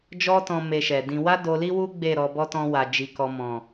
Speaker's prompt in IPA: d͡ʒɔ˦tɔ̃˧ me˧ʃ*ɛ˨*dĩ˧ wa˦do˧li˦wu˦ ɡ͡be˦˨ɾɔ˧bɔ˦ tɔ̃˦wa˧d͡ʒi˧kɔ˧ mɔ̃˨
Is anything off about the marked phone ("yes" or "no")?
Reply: no